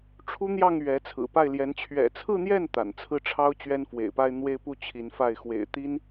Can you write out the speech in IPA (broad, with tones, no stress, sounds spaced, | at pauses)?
ʈ͡ʂʰ u˥ n̪ j ɑ˥˩ ŋ ɥ ɛ˧˥ t͡sʰ ɹ̩˨˩ p a˥˩ ɪ̯ l j ɛ˧˥ n t͡ɕʰ ɥ ɛ̰˨˩ t͡sʰ ɹ̩˥˧ n̪ j ɛ˥˩ n t̪ a̰˨˩ n t͡sʰ ɹ̩˥˩ ʈ͡ʂʰ ɑ˥ ʊ̯ t͡ɕ ɥ ɛ˥ n f w ḛ˨˩ ɪ̯ p a˥ ɪ̯ n̪ w e˥ ɪ̯ p u˥˩ t͡ɕʰ i˧˥ n f a˥˩ ɪ̯ x w ḛ˨˩ ɪ̯ t̪ i˥ n